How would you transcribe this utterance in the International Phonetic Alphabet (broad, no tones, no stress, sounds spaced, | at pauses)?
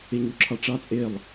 e ɲ u ǁʰ ɑ ʈ͡ʂ ɑ t͡sʼ e lˠ